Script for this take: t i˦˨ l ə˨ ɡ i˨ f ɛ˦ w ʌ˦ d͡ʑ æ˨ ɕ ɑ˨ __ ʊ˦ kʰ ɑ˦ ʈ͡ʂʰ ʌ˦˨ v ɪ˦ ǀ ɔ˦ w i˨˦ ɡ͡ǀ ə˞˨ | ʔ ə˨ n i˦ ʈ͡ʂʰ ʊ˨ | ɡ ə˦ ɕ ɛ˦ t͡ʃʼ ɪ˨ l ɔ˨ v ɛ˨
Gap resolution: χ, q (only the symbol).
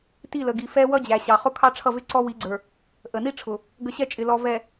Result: χ